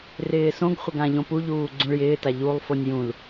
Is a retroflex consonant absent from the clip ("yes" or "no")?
no